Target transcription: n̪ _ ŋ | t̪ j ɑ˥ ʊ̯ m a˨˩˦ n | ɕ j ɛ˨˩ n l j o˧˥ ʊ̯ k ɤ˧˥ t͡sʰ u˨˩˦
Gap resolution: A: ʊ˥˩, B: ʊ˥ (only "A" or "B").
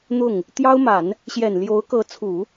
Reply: A